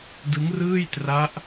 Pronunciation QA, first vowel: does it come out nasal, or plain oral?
oral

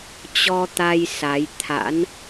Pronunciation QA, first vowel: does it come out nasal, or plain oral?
oral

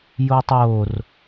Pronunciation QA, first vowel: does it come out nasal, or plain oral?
oral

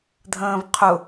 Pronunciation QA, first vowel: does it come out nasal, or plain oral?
nasal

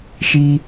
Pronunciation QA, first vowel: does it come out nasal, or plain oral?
oral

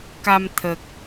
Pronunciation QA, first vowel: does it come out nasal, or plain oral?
oral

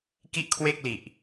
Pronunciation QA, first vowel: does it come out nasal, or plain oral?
oral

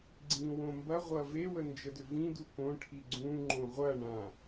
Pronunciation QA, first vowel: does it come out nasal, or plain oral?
nasal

